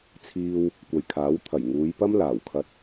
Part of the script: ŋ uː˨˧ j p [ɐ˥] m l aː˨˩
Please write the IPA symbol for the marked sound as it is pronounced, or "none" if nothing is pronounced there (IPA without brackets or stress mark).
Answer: ɐ˥